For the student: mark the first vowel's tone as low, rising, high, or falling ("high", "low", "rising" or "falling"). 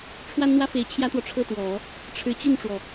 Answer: high